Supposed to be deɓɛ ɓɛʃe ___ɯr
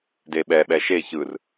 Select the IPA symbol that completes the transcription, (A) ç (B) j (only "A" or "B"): A